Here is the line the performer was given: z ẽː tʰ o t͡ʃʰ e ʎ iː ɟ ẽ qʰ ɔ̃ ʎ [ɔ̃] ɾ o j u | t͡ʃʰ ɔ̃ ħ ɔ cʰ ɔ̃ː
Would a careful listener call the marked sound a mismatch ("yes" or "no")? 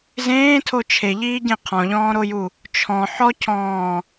yes